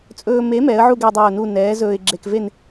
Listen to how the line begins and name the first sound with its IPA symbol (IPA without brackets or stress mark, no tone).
t͡sʼ